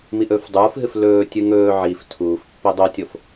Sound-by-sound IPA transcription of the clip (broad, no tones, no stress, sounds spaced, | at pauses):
m i ʔ ɵː f dˤ uː f ɦ ɨ f l ɵː tʲ ɨ ŋ ɵː ʕ i f tʰ uː f pː e dˤ o tʲ o f